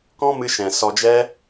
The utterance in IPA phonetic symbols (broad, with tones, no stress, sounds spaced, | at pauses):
k ɔ̃˦ m ɨ˧ ʃ ɛ̃˨ s ɔ˧ d͡ʒ ɛ˦